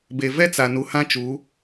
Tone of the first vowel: low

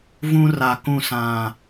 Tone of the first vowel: high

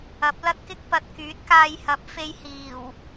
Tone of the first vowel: rising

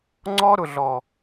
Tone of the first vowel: high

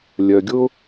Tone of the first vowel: low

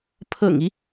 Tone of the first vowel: low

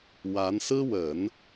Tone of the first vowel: rising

